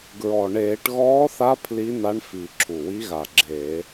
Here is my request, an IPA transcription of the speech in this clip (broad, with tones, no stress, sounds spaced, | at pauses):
ɡ ɹ ɔ˨˩ ɳ eː˧˩˧ ʈ ɣ ɔː˧˥ θ a˧˥ pʰ l i˧˥ n a˧˥ ɳ f i˨˩ ǁʰ u˨˩ w i˧˥ ɣ a˨˩ ɡ͡ǁ eː˧˩˧